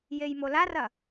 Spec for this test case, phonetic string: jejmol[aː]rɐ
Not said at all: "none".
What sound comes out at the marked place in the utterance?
a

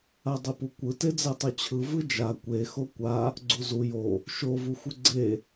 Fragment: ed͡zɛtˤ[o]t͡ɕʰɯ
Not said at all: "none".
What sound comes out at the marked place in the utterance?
o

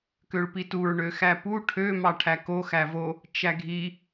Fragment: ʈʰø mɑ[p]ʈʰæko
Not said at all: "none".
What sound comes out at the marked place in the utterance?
none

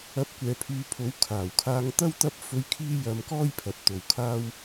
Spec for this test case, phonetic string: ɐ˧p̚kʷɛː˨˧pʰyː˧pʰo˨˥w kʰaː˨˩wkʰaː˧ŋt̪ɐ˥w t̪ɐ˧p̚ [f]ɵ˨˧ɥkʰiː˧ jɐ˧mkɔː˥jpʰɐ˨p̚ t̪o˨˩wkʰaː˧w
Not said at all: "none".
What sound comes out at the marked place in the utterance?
f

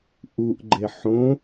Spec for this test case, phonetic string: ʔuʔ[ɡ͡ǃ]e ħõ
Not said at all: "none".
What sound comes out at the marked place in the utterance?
ɡ͡ǃ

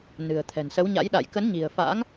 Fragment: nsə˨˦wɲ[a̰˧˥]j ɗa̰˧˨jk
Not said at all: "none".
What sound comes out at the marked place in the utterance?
a̰˧˥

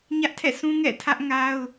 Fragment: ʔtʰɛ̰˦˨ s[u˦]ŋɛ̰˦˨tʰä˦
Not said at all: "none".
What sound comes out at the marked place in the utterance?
ũ˦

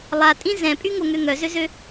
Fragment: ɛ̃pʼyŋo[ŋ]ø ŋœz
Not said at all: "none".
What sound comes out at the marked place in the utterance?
ŋ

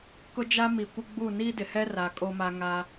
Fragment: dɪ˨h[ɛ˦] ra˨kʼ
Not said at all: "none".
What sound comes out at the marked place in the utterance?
ɛ˦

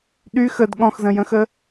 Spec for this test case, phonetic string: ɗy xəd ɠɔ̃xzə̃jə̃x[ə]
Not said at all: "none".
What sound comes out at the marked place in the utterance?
ə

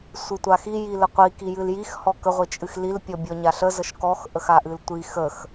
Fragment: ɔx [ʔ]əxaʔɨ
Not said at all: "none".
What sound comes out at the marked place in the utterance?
ʔ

